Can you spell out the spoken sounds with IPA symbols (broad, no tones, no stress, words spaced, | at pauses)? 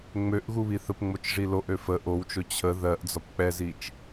ŋ͡møʔ ɣuβiθəp ŋ͡mot͡ʃʐiloʔ øfə ʔowt͡ʃo t͡ɕʰə ðɜʔ d͡zɒpk͡pɛzit͡ʃ